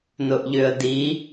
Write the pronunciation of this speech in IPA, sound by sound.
nʊʔʎʏə̯di

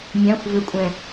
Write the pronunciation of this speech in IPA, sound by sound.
mʲãxʷ vʏkʷʼɛ̃

